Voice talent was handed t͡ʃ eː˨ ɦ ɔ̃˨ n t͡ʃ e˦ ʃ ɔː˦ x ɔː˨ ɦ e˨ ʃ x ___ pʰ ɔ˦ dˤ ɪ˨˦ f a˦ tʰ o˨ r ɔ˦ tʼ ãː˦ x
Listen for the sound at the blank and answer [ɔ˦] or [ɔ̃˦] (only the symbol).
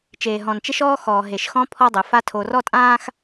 ɔ̃˦